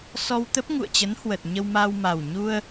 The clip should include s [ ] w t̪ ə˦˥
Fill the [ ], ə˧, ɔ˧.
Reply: ɔ˧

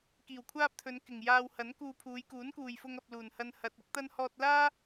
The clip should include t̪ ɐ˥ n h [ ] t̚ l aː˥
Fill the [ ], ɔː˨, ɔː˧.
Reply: ɔː˧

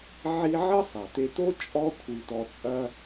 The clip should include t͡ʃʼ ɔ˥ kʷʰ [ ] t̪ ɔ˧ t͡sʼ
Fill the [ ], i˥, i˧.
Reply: i˧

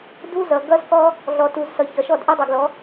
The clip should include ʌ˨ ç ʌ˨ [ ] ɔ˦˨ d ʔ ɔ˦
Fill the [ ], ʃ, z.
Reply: ʃ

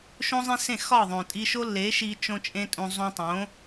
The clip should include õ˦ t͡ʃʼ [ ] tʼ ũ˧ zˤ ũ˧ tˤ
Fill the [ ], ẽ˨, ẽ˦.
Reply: ẽ˦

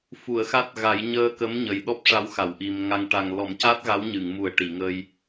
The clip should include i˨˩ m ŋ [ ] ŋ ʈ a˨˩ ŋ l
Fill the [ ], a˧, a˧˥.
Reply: a˧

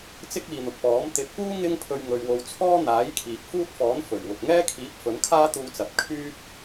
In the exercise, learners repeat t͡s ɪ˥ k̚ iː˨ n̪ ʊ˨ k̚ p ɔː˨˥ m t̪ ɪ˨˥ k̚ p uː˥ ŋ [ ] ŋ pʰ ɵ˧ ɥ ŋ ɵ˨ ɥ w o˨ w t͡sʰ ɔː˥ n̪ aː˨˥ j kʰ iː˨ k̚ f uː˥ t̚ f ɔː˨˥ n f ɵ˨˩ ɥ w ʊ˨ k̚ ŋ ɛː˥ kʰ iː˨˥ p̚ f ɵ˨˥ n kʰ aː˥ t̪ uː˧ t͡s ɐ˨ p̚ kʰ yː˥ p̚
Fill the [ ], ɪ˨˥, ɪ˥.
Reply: ɪ˥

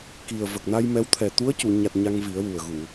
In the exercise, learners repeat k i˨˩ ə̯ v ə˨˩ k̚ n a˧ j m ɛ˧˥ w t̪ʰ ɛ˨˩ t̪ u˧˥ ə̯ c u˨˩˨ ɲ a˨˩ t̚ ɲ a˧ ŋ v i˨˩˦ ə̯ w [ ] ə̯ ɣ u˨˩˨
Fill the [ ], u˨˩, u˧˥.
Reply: u˨˩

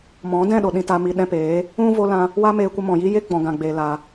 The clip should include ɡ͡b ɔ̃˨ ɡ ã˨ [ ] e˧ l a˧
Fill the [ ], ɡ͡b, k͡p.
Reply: ɡ͡b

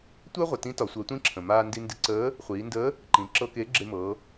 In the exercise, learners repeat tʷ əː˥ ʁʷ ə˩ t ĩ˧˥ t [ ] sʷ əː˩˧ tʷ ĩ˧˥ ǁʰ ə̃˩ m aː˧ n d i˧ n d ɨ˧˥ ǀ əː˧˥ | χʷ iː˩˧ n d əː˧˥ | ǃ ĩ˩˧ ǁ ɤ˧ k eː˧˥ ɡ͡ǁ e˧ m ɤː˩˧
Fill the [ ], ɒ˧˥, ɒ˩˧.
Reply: ɒ˩˧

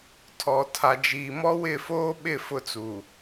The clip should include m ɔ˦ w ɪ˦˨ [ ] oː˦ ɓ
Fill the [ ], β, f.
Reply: f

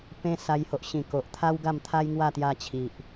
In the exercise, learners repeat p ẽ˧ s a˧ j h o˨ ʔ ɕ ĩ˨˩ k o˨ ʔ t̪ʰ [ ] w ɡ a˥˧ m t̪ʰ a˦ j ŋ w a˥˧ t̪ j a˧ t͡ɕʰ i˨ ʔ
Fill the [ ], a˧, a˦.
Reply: a˦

